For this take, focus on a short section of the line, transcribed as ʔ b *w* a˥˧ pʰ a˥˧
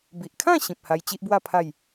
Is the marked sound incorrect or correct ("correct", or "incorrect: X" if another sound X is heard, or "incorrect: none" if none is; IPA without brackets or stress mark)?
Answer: correct